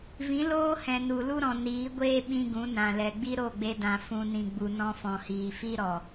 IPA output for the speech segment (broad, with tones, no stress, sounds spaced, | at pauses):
v ĩ˨˦ l oː˦ h ɛ̃˨ n u˨ l u˦ ɾ ɔ̃˨ n iː˨˦ ɡʷ eː˦ ɓ ĩ˦ ɡ ũ˨˦ n ã˨ l ɛ˨ ɡ͡b i˦ ɾ o˦˨ ɡ͡b e˧ d ã˨ f ũ˧ n ĩ˧ ɡ͡b u˧ n ɔ̃˦ f ɔ̃˨ h iː˨ f i˦ ɾ ɔ˨